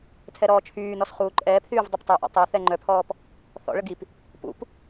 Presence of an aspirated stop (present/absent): present